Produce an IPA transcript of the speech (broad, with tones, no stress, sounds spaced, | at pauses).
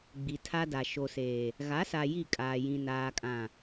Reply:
ɡ͡b i˨ tʰ a˦ d a˨ ʃ o˨ s eː˨ | ɣ a˨˦ s a˨ j i˦˨ kʼ aː˨ j ĩ˨ n aː˨ kʼ ã˨